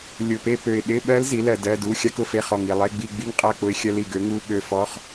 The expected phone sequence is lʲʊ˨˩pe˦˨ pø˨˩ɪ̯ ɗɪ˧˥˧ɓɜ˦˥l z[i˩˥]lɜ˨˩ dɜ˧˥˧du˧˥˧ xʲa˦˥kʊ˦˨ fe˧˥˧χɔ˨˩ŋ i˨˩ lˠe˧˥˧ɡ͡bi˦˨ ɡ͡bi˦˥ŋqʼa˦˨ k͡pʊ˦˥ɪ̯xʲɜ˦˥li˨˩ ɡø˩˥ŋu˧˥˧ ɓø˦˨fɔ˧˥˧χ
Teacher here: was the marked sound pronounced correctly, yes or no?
yes